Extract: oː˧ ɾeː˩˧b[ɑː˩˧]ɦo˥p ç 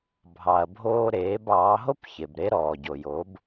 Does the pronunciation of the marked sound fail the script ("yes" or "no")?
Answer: no